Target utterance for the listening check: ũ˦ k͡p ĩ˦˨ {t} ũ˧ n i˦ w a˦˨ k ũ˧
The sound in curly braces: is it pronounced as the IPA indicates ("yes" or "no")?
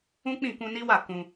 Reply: no